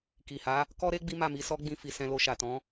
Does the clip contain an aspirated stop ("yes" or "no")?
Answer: no